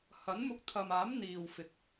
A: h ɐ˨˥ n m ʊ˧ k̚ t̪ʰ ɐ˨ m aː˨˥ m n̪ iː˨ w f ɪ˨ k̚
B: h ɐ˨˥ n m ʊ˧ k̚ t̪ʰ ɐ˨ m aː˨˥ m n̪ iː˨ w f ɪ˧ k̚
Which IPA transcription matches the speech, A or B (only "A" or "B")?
A